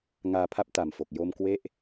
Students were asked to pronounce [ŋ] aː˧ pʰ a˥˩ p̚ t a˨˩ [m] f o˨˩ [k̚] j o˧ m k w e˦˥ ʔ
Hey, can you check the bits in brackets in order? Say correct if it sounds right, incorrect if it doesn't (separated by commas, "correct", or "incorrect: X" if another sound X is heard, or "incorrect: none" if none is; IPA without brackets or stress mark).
correct, correct, correct